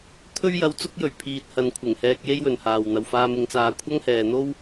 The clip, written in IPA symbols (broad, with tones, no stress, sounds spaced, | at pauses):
t̪ʰ ɵ˧ ɥ j ɐ˨ w t͡s ʊ˧ k̚ j ɵ˨˩ ɥ pʰ iː˨ t̚ h ɐ˨ n kʷʰ ɪ˨˩ ŋ h ɛː˧ k̚ j e˥ j w ɵ˨ n h aː˨ w n̪ ɐ˨ w f aː˧ m ɪ˨˧ ŋ t͡s aː˧ kʷʰ ɐ˥ ŋ h ɛː˨ n̪ o˥ w